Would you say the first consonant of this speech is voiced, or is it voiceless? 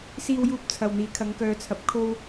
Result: voiceless